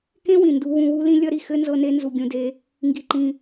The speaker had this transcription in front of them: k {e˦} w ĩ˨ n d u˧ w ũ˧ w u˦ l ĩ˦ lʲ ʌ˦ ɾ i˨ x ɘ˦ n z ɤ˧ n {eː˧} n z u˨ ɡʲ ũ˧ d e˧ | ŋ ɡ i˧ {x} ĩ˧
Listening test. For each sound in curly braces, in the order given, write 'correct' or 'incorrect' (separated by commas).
incorrect, incorrect, incorrect